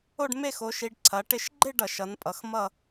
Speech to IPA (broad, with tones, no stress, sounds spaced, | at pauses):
o˥˧ ɖ m e˥˧ x o˨˦ ʃ i˨˦ ɖ ǀʰ ɐ˨˦ ʈ ɪ˥˧ ʃ ɡ͡ǃ ɪ˥˧ ɖ ʌ˧˩˧ ʃ ʌ˨˦ n pʼ ʌ˨˦ x m ʌ˥˧